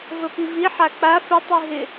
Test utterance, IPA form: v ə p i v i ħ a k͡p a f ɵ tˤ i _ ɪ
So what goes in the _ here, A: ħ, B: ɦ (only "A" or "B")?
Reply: B